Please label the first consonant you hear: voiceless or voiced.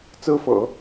voiceless